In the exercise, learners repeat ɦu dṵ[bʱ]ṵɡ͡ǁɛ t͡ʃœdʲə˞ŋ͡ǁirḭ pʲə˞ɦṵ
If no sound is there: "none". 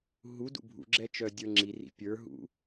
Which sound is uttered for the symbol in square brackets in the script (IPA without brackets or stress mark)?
bʱ